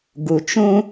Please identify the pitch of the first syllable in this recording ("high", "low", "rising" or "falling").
low